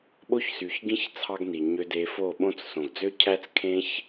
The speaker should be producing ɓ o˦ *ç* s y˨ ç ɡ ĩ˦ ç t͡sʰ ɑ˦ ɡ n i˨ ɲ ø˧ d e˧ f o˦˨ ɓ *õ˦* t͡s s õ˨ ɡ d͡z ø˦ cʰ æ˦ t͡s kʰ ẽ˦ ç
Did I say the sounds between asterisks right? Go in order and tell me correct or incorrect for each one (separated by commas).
correct, correct